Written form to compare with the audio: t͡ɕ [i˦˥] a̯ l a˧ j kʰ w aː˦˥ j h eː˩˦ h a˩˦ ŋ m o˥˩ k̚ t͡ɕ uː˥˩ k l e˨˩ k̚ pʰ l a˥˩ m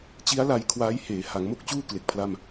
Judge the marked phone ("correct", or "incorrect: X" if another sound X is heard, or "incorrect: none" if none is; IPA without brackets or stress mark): correct